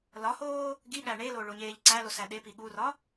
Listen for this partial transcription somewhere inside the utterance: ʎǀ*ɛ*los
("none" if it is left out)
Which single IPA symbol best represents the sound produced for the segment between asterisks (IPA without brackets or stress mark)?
æ